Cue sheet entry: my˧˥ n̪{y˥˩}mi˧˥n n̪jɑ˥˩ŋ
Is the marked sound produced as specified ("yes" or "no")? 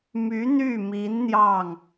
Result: yes